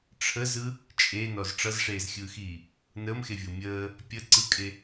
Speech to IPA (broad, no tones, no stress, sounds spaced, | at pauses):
ʈ͡ʂʰ ə z ɯ | t͡ʃʼ e n ɔ z ʈ͡ʂ ʌ z ʂ eː z xʲ ɯː x iː | n əː m x e vʲ o mʲ əː | pʲ ə ǀ ɯ kʼ e